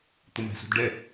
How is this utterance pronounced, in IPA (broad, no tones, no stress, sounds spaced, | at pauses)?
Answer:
t̪ ʊ m æ̤ s ṳ d ɖ ɛ